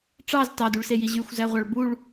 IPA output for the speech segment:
ʈ͡ʂ ɑ z t ɑ d u ɭ s e j i ʑ y xʷ z æ ʁʷ ɑ ɭ b u ɭ

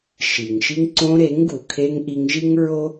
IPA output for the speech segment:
ʃ i˨ ŋ ʃ i˦ ŋ ǀ õ˧ ɾ e˨˦ ŋ ɡ u˨ kʰ e˧ ŋ ʔ i˧ ŋ ʒ i˦ ŋ ɹ o˦

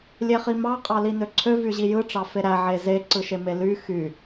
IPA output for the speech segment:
lʲ e χ i m ɑ qʼ ɑ l i n ø ǀʰ ø v y ʑ i j ɯ ʈ͡ʂ ɑ f e ɾ æ ʕ e z e ǀ ɯ ʃ e m e l y x y

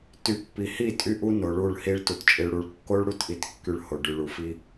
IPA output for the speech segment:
t y˨˦ pː i˨ h i˦˨ tʼ y˦ ʔ u˦ n o˨ ɭ u˦˨ ɭ h i˦ ɭ t u˨ t t͡ʃʼ i˨ ɭ ɽ u˨ ɭ kː o˦ ɭ ɽ u˦ t ʔ i˨ t kː y˨ ɭ h o˨ ɖ y˨ ɭ u˨ f i˦

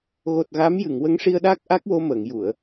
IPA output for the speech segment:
ɣ o˨˩ t̚ ɣ a˧˥ m j ɨ˨˩˨ ŋ w ə˧˥ ŋ ʂ i˧ ə̯ ɗ aː˦˥ k̚ ʔ a˦˥ k̚ w o˧ m əː˨˩˨ ŋ j u˨˩˨ ə̯

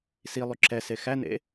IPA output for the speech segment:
s i lˠ y ǁ ɛ s e x æ n ḛ

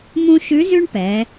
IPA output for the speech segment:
m ũ˥ ʃ ʉ˧˥ z ʉ˥ ɳ p ɛ˩˧

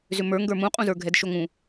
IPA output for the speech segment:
z ʏ m ə˞ ŋ ɡ ə˞ m ũ qʼ ũ z ə˞ ɡʱ ɛ d ʃ o ŋ ũ

